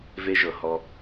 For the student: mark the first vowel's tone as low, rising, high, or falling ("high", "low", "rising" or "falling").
high